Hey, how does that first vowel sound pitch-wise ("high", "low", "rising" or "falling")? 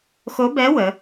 rising